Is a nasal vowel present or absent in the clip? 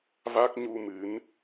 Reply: absent